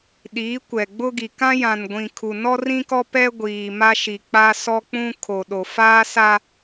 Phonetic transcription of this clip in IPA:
ɗ iː˨˦ kʷ ɛ˨ ɡ͡b ʊ˦ ɡ i˨ k ã˦ j ã˨ n ɡʷ ĩ˨ kʰ u˨ n ɔ˦ r ĩ˦ k ɔ˦ p ɛ˦ ɡʷ iː˨ m a˦ ʃ i˨ k͡p a˦ s ɔ˦ k͡p ũ˦ kʰ o˨ ɗ o˨ f aː˦ s a˦

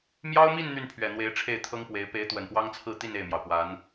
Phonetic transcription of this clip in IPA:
m j ɑ˥ ʊ̯ m i˥˧ n n̪ y˥˩ n pʰ ɥ ɛ˨˩ n̪ w e˧˥ ɪ̯ ʈ͡ʂʰ e˥˩ ɪ̯ t̪ʰ ɤ˥ ŋ p w e˧˥ ɪ̯ p e˧˥ ɪ̯ t̪ w ə˨˩ n p w ɑ˥ ŋ t͡sʰ ɹ̩˥˧ t̪ i˥˧ n e˥˩ ɪ̯ m j ɑ˩ ʊ̯ p w a˧˥ n

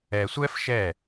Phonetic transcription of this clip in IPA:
ɛ˨ sʷ ɛ˦ f ʃ ɛ˦˨

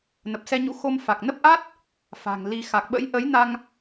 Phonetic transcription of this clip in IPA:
n ə˨˩ p̚ s ɛ˧ ɲ ṵ˧˥ x o˧ m f a˨˩ k̚ n ə˦˥ p̚ ʔ a˦˥ t̚ | f a̤˨˩ ŋ l i˧ x a˨˩ k̚ ɓ ə̰˧˥ j ʔ ə˨˦ j n a˧ ŋ

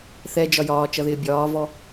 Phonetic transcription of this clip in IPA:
θ ɛ d͡ʒ ɒ j ɒː t͡ʃ ʌ ð ɪː bʲ ɒː v ɔ

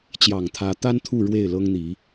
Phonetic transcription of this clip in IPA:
t͡ɕ j ɑ˨˩ ŋ t̪ʰ ä˨˦ t̪ a˦ n t̪ʰ u˥˨ ɻ w e˥˨ ɪ̯ l ɤ˦ ŋ n̪ i˨˦

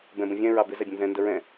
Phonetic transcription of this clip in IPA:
b ɛ̃ b ə̃ vʲ ɛ̃ ɹ ɑ b ɪ z ɛ bʲ ə̃ n z ɛ̃ n d ə ɹ ɛ̃

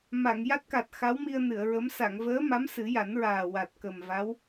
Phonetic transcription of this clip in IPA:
m a˨˩˨ ŋ j a˦˥ t̚ k a˨˩ t̚ x a˧˥ w m i˧ ə̯ n ɨ˨˩˨ ə̯ ɹ ə˧˥ m s a˨˩˨ ŋ v əː˧˥ m a˧˥ m s ɨ˨˩˦ j a˨˩˦ n ɹ aː˨˩ w a˨˩ t̚ k ə˨˩ m v a˧˥ w

